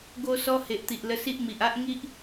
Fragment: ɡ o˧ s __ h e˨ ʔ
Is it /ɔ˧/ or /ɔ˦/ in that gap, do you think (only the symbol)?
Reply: ɔ˧